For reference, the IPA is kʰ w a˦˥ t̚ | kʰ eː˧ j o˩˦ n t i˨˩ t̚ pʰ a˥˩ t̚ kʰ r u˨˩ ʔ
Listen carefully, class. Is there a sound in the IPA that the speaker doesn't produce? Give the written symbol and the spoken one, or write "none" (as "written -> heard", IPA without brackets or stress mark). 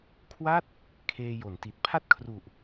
none